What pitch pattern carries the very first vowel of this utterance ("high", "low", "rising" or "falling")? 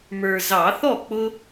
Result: low